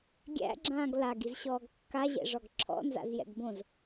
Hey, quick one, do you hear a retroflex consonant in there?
yes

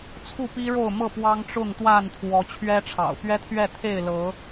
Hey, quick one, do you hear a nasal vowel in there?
no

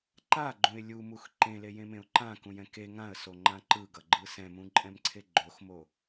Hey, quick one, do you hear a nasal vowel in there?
yes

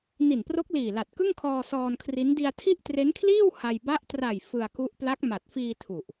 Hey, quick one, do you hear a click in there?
no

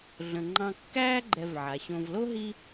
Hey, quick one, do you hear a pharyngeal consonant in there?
yes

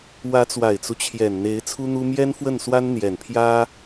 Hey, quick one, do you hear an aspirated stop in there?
yes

